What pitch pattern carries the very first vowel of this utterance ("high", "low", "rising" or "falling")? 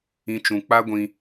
high